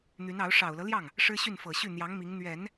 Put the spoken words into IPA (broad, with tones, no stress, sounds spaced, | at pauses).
n̪ y˧˥ n ɑ˧˥ ʊ̯ ʂ ɑ˨˩ ʊ̯ l ɤ˦ l j ɑ˥˩ ŋ | ʂ ɻ̩˥ ɕ y˥˩ n f ɤ˨˩ ɕ y˥˩ n̪ j ɑ˧˥ ŋ m i˧˥ ŋ n̪ ɥ ɛ˨˩˦ n